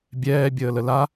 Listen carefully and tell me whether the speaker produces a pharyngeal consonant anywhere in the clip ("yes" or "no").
no